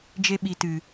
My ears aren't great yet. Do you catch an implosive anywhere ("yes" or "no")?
yes